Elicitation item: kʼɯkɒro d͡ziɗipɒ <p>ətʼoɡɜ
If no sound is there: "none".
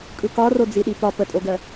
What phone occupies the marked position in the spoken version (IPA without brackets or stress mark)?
p